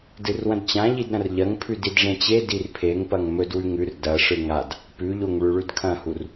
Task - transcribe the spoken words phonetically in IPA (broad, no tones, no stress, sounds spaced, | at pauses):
d ɨ r w ɐ̃ d t͡ɕ ã ʎ i d ɾ ɐ̃ r ʎ ɐ ŋ pʰ ʉ d i d ʐ ẽ t͡ɕ e d i r pʰ e ŋ p ɐ ŋ m ɵ d w ʉ ŋ ʉ r d ɐ ʂ ɨ ŋ a d | p ʉ ʎ o ŋ ɭ ʉ ɭ ʉ d kʰ ɐ̃ h u r